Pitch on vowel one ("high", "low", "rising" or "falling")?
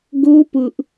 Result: high